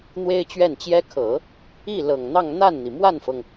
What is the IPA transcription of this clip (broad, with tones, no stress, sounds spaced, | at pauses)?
n̪ w e˥ ɪ̯ t͡ɕ ɥ ɛ˥˩ n t͡ɕ j ɛ˥ kʰ ɤ˨˩˦ | i˥˩ l ɤ˨˩ ŋ n̪ ɑ˥˧ ŋ n̪ a˥˩ n n̪ i˩ m w a˥˩ n f ɤ˩ ŋ